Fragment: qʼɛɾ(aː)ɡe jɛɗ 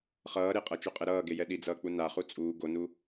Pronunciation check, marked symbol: incorrect: ʌː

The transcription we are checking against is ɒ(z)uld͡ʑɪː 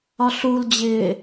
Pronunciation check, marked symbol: incorrect: ɬ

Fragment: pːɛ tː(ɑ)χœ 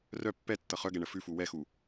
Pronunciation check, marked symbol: incorrect: ʌ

